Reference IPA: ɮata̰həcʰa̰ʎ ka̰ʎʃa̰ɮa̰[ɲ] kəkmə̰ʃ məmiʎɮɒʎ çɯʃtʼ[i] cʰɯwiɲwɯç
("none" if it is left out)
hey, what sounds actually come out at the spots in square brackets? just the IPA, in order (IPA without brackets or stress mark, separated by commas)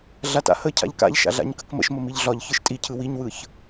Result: ɲ, i